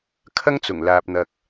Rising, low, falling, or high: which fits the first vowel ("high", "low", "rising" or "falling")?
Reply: high